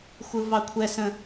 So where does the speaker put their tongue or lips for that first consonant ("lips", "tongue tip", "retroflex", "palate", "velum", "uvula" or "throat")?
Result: velum